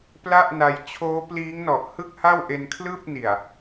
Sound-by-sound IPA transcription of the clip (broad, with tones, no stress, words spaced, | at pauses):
pla˥˩ʔna˧j t͡ɕʰoː˦˥pliː˦˥ŋnɔ˨˩ʔ hɯ˥˩k̚ha˥˩wʔe˧nkʰlɯː˥˩p̚ ni˨˩a̯